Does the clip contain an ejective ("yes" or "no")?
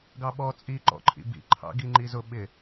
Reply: yes